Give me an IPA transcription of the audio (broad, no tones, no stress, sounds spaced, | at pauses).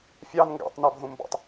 fʲ ɑ n ŋ ɡ a̰ tˤ n a bʱ ũ m b ɔ̰ tˤ